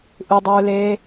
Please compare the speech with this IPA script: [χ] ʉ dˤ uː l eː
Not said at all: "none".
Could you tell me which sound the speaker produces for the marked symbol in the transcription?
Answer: ʔ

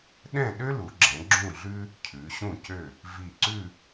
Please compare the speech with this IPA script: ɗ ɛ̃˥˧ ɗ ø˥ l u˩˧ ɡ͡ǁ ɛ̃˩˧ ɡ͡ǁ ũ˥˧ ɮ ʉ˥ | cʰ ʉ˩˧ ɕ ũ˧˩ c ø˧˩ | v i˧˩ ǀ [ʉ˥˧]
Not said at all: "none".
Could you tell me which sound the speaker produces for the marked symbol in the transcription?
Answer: ʉ˥˧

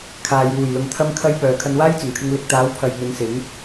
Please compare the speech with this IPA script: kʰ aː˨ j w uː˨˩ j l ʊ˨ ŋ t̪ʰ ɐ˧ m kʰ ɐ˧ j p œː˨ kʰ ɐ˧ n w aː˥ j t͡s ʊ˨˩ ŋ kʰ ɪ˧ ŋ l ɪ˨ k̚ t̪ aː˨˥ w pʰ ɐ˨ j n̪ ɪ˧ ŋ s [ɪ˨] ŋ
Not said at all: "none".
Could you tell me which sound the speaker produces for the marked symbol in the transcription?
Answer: ɪ˨˥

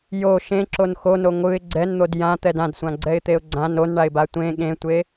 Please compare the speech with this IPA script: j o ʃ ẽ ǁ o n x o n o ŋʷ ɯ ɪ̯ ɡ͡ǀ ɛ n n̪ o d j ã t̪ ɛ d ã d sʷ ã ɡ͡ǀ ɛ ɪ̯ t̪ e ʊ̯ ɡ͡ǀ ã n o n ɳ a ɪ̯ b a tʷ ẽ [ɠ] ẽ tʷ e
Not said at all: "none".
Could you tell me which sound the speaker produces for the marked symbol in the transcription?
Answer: ɠ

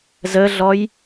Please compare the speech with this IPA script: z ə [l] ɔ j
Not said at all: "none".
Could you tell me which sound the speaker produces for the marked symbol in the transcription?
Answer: ɮ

